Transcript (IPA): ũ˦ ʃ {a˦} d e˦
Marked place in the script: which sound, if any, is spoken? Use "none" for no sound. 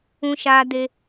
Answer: aː˦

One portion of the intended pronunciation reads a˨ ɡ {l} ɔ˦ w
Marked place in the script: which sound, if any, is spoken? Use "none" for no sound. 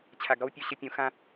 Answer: ɾ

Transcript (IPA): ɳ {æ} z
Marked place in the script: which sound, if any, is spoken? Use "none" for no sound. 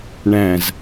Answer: æ̃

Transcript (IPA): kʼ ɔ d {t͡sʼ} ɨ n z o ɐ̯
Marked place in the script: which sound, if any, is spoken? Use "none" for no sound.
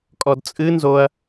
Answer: t͡sʼ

